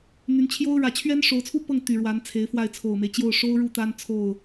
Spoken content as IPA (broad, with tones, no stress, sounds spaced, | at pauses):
n̪ y˧˥ n t͡ɕʰ j o˥ ʊ̯ ɻ ä˧˥ t͡ɕʰ ɥ ɛ˥ n ʂ o˧˥ ʊ̯ t͡sʰ u˥ p ɤ˥˩ ŋ t̪ y˨˩ ɻ w a˧˥ n t͡sʰ e˧˥ ɪ̯ f w a˥˩ ɪ̯ t͡sʰ o˨˩ ʊ̯ m e˦ ɪ̯ t͡ɕ j o˥˩ ʊ̯ ʂ o˥ ʊ̯ ɻ u˥˩ t̪ a˥ n t͡sʰ o˥˩ ʊ̯